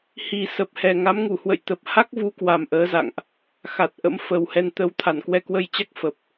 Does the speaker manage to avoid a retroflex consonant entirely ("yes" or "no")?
yes